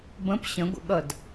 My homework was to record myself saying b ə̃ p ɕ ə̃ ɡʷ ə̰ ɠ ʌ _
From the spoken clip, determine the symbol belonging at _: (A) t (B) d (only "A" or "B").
B